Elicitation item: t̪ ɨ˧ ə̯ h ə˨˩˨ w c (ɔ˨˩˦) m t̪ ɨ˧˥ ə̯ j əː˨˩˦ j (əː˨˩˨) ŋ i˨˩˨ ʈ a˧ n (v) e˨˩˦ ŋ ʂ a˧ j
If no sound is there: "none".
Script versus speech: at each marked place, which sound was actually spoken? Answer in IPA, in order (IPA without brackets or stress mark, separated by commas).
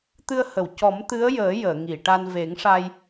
ɔ˨˩˦, əː˨˩˨, v